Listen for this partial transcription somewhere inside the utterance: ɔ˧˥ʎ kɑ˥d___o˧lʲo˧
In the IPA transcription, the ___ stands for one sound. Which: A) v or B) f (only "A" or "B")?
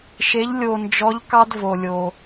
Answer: A